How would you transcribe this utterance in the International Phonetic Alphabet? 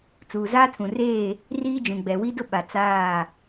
t͡s uː˨ z aː˦ tʰ ũ˨ r eː˦˨ | r iː˦ d͡ʒ ũ˨ ɡ͡b ɛ˨ w i˦ d ʊ˦ ɓ a˨ t͡s aː˦˨

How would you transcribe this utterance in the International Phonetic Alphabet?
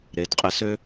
ɾ e˩˧ d qʼ ɪ˧ s ø˥

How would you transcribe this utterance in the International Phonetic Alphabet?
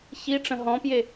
ç i ʈ͡ʂ ə̃ ɦ ɔ̃ p j e

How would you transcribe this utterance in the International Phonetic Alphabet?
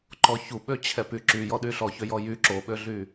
ǃ ɔ ç u ɓ ø t͡ɕʰ ɛ p y ǁ y j ɔ ɗ y ɬ ɔ ç ø j ɔ j y ǁ o ɓ ø ɮ y

